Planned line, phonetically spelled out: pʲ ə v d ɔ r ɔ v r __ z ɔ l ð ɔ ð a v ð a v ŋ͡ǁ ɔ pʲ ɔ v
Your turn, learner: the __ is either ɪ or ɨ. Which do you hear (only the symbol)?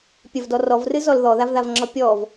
ɨ